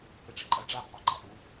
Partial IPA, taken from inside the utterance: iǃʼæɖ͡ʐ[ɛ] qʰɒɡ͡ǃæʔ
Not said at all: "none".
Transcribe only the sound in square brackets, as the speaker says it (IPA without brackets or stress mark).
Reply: æ